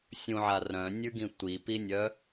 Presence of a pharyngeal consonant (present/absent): present